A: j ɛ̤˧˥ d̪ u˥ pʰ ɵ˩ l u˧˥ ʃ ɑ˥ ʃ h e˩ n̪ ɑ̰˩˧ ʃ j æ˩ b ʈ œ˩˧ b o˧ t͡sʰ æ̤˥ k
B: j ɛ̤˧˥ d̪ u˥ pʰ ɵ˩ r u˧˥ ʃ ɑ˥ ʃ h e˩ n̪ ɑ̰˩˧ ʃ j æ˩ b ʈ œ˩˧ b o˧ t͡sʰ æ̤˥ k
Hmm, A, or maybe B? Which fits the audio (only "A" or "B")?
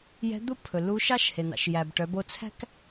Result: A